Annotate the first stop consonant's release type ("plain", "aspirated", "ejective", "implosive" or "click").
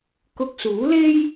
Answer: plain